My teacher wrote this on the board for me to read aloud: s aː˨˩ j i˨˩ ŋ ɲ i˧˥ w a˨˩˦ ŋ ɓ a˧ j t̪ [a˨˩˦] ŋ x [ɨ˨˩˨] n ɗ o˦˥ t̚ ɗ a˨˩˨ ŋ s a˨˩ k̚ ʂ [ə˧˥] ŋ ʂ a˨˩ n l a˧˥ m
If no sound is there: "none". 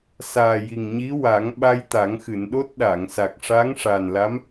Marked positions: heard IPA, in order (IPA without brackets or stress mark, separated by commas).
a˨˩˦, ɨ˨˩˨, a˧˥